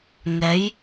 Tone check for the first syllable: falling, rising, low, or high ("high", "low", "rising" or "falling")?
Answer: rising